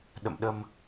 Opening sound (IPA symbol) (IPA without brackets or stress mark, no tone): ɗ